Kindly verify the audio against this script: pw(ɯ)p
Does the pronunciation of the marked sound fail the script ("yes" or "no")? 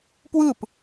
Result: no